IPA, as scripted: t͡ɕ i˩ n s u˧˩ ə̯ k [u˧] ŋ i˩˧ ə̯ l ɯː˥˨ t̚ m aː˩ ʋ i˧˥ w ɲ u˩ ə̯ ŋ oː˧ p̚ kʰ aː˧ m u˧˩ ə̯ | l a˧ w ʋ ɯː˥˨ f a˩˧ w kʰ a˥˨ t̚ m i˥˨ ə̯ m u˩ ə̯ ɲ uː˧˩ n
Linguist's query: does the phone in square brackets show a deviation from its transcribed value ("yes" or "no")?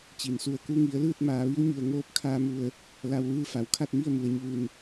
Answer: no